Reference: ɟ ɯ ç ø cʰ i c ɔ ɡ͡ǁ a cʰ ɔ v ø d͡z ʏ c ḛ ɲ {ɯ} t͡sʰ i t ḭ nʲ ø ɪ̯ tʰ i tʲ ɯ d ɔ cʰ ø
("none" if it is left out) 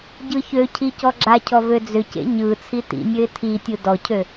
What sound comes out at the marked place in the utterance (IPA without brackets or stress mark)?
ɯ